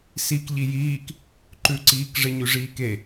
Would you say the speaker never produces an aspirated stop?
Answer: yes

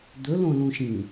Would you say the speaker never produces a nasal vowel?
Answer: no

